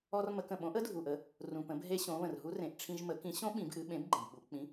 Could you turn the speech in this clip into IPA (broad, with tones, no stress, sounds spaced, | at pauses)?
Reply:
ɔ˧ r m ə˩˧ k ə̃˩ ɓ õ˩˥ ʔ ə˦˥ dʱ u˩ ʔ ə˩˧ | r ũ˩ p ə̃˩˧ b ɦ e˧ ɕ õ˩˧ β ə̃˩ r ɦ u˦˥ r ẽ˩˧ ʔ ʈ͡ʂʰ ĩ˧ ʒ m ə˩˥ k ĩ˩˥ ɕ õ˦˥ ɓ ĩ˩˧ b ʔ ɨ˩˧ ɓ ẽ˩˥ b ɡ͡ǃ ə̃˩ b ɓ u˩˧ k͡p ĩ˩˥